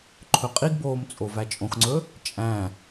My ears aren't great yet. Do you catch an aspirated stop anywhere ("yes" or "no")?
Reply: yes